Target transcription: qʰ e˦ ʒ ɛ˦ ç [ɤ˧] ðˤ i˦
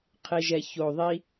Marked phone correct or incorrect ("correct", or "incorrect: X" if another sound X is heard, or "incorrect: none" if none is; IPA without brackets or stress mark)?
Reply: incorrect: o˧